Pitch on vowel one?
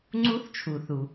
rising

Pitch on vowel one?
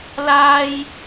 high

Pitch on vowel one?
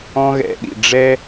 high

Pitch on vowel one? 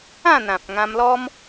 falling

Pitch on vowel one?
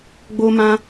high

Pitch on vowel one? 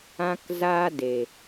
high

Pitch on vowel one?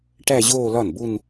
falling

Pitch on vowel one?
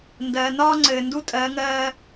low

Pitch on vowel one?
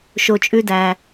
low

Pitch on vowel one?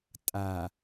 low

